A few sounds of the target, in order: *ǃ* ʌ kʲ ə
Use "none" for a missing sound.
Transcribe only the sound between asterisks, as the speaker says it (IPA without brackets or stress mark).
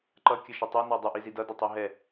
ǃ